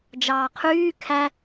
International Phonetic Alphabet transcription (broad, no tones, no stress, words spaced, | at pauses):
d͡ʒɑːqʰyː kʰæ